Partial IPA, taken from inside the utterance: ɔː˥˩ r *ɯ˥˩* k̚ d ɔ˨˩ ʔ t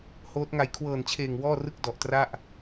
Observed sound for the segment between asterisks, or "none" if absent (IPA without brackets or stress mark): ɯ˥˩